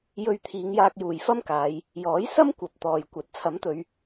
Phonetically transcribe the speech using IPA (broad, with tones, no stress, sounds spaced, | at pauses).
j ɵ˧ ɥ t̪ʰ iː˨˧ ŋ j aː˧ k̚ j uː˨ j f ɐ˥ m k aː˨˧ j | j ɔː˨˥ j s ɐ˥ m kʷ ɐ˨ p̚ t̪ ɔː˨ j kʷ ɐ˨˥ t̚ t͡sʰ ɐ˨˥ m t̪ ɵ˨˧ ɥ